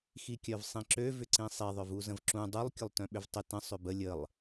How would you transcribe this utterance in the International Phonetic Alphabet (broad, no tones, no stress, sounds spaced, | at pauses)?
x i kʲ œ v sˤ ĩ ǁ ø v ʏ ǀ ĩ sˤ i ðˤ œ v u z ə̃ v ǁ ũ dˤ u lˠ kʲ ʊ lˠ t œ̃ ɓ ʏ v tˤ ʏ t ə̃ sˤ ʏ b ə lʲ ə lˠ